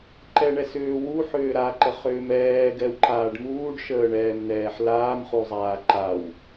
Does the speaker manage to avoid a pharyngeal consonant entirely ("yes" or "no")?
no